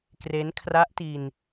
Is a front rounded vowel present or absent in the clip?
absent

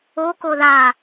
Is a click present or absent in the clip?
absent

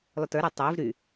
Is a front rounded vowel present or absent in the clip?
present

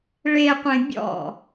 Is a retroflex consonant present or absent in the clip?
present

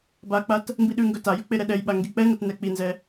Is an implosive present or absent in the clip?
present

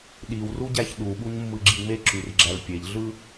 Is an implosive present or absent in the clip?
present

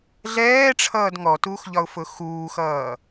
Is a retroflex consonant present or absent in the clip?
present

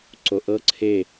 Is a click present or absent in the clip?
present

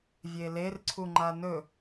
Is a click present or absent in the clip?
present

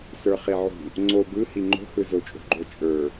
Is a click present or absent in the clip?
present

